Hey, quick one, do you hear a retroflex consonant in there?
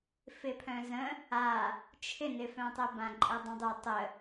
no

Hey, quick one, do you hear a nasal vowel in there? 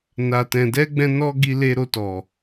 yes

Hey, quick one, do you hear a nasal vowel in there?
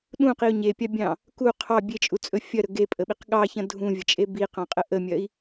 yes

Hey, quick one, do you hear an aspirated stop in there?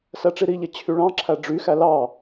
yes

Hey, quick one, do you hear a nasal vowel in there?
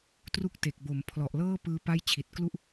no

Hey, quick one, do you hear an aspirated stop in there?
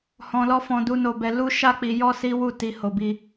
no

